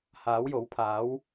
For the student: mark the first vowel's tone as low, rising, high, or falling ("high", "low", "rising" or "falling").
rising